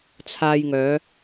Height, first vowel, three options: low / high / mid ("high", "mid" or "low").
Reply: low